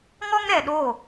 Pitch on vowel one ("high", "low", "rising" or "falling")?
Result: high